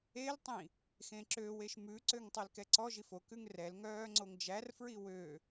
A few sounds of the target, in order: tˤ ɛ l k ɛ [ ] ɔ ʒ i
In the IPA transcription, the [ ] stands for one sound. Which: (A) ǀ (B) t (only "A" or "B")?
A